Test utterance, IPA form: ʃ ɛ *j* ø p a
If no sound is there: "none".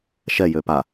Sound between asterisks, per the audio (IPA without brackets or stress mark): j